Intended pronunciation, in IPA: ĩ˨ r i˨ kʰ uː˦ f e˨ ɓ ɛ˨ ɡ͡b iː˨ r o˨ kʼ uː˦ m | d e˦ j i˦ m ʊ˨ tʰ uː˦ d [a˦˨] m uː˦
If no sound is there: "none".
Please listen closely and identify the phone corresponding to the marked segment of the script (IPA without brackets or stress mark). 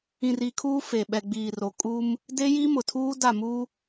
a˦˨